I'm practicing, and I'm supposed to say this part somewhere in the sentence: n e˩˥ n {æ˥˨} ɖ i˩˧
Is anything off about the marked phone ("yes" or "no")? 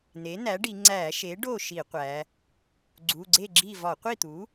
yes